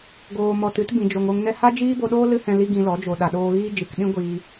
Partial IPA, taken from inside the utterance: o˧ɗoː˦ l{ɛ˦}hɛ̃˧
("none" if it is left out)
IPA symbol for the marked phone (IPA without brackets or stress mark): ɨ˦